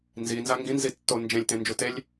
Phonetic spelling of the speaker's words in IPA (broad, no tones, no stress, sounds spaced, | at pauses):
n z i n z a ŋ ɡ ĩ n z i tː o n d͡ʒ ẽ lʲ t ẽ n d͡ʒ u t e lʲ